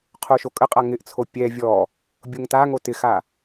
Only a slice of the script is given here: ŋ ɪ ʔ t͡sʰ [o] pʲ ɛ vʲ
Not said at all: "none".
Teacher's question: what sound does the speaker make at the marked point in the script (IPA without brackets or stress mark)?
o